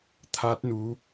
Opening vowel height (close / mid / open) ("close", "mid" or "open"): open